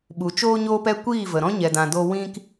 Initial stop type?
implosive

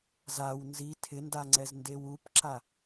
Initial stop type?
aspirated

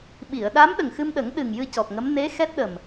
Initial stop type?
implosive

